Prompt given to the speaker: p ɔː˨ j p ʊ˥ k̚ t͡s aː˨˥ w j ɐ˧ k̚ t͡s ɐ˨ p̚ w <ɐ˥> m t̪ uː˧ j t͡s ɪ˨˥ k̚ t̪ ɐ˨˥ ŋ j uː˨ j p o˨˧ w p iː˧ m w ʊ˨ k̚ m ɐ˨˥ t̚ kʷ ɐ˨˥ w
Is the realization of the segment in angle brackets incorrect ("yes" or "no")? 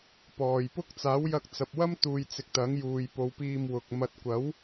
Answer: no